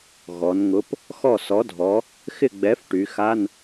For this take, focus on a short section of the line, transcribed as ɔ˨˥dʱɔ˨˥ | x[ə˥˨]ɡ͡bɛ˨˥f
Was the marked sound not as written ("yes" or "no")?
yes